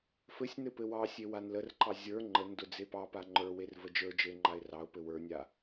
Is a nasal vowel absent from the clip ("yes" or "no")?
yes